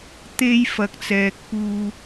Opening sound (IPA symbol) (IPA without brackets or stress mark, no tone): t̪